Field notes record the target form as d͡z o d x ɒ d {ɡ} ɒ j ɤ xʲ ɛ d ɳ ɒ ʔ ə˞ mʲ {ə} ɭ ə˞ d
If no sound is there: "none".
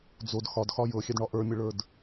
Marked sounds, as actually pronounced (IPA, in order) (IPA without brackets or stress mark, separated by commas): x, ə